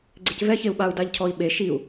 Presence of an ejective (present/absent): absent